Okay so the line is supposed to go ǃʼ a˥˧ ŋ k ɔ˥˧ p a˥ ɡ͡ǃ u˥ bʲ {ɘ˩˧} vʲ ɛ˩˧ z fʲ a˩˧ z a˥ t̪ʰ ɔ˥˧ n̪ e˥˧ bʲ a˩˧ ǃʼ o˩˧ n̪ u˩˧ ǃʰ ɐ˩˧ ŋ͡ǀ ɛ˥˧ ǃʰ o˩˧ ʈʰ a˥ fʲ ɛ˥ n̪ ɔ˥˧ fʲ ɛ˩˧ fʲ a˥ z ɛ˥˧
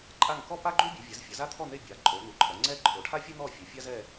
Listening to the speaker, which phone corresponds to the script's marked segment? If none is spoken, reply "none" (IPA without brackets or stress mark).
ɘ˩˧